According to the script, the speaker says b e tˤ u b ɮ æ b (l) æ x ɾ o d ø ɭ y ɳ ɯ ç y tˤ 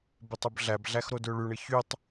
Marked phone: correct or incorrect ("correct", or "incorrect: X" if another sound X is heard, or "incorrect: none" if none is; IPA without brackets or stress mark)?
incorrect: ɮ